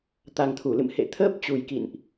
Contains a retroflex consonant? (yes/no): no